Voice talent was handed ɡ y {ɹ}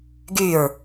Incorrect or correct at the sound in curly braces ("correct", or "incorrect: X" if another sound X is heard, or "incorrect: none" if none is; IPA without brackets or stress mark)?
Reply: correct